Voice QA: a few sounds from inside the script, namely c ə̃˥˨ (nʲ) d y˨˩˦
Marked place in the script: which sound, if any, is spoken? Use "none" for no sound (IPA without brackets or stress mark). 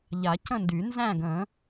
n